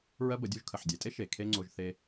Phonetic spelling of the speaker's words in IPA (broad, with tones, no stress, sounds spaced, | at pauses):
ɹ ɜ˦ b ə˨˦ dʲ u˧ ʒ kʰ ə˨ ħ dʲ e˨ tʼ e˦ ʃ e˨ kʰ e˦ ŋ͡ǀ o˧ ʒ θ e˧